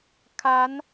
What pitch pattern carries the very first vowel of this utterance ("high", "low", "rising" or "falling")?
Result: rising